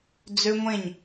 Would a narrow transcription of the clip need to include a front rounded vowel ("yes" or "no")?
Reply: yes